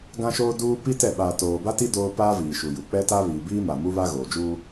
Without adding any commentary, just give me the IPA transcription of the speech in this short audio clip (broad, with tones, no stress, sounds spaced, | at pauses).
ɡ ã˦ ʃ oː˦ d uː˦ p i˦ t ɛ˦˨ ɓ aː˨ t oː˨ b a˦ t i˦ d oː˦ p aː˦ v iː˨ ʃ u˨ j u˨ k͡p ɛ˦ t a˦ β iː˨ b iː˦ m a˨ m u˦ β a˦ ɣ oː˨ d͡ʒ uː˦